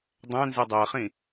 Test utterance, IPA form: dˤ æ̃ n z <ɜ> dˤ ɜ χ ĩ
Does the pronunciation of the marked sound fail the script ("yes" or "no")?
no